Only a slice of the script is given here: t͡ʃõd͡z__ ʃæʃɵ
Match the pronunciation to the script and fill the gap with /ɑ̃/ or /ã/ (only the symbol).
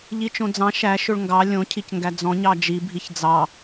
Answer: ɑ̃